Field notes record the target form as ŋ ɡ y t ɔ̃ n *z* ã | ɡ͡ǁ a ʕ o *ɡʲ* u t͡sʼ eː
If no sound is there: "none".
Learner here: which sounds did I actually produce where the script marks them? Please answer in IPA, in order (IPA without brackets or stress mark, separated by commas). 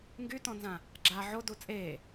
z, d